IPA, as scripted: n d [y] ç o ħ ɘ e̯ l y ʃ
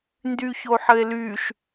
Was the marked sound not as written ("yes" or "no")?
no